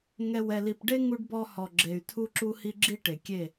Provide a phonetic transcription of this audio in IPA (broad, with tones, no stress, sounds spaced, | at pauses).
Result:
ŋ ɛ˨ w ɛ˨ l i˨ p ɖ e˦ ŋ u˦ ɖ b ɔ˦ h ɔ˨ ɡ͡ǁ e˨ y̯ tʰ u˦ ǁ u˦ h i˦ ɡ͡ǁ i˦ ʈ e˨ kʲ e˦˨